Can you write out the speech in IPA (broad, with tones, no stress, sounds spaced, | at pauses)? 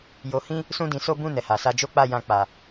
j o˧ h ĩ˦ | s ũ˦ d ĩ˧ s o˦ b ũ˦˨ n ɛ˨ h a˨ s a˧ d͡ʒ o˦ k͡p a˦˨ j ã˧ k͡p a˨